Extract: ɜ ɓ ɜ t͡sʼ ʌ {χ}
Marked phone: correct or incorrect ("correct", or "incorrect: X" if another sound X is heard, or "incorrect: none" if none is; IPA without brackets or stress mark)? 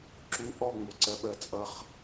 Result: correct